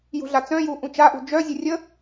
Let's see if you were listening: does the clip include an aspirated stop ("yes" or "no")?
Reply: no